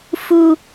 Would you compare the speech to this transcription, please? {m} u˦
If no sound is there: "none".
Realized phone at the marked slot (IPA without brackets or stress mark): f